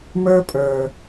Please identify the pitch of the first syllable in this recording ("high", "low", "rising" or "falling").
high